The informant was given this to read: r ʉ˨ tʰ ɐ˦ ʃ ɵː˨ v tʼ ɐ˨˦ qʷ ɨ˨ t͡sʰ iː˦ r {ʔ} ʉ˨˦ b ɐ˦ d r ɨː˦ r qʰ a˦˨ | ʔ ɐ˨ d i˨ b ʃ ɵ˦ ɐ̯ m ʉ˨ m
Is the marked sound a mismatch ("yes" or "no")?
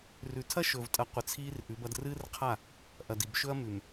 no